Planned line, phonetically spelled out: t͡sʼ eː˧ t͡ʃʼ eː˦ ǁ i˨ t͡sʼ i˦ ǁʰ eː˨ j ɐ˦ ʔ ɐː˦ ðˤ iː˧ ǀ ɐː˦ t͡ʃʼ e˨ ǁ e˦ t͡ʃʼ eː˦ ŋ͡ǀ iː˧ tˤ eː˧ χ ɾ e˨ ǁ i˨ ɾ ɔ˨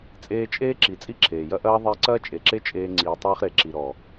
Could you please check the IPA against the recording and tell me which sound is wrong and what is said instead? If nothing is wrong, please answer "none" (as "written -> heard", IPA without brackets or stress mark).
none